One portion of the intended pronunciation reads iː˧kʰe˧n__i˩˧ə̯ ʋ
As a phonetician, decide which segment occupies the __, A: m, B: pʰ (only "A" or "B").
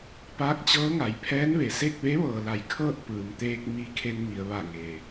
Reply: A